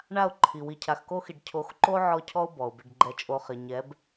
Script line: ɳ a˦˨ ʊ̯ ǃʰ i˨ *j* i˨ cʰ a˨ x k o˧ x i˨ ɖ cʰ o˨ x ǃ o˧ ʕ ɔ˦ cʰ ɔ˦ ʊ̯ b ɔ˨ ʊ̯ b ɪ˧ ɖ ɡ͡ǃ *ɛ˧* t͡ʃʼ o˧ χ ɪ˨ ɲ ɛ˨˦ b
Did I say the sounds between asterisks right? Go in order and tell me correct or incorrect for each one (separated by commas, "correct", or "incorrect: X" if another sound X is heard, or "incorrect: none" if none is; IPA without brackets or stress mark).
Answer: incorrect: w, correct